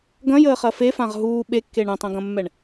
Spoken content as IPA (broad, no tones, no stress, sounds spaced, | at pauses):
ɡ ɐ̃ j əː χ ɐ f e f ã ʁ ɦ uː ɓ e kː e ɳ ɐ̃ tˤ ɐ̃ ɡ ɐ̃ mː ɛ ɳ